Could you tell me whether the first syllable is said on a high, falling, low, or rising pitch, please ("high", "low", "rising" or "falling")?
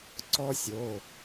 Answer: high